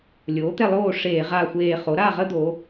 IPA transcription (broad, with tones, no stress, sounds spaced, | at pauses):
lʲ oː˩˥ t̪ ɛ˥˨ lˠ oː˥˨ ʂ eː˧˩˧ ʁ a˧˩ xʷ eː˧˩ χ o˩˥ ɾ a˥˨ ʁ ə˦ d̪ o˩˧